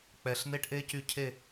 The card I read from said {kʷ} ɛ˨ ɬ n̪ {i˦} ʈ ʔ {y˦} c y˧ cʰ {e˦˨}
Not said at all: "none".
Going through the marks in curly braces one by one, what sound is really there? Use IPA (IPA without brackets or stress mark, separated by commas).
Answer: k͡p, e˦, e˦, e˦˨